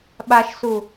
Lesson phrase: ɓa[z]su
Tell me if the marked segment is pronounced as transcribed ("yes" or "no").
no